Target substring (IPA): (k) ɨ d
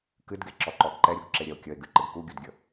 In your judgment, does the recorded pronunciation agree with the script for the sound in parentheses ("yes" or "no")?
yes